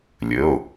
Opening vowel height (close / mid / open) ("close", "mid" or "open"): mid